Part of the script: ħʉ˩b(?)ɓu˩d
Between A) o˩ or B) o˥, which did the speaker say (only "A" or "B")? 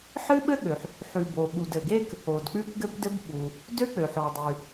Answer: A